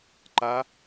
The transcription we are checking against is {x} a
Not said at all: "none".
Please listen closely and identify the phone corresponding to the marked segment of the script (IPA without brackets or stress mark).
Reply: ǃ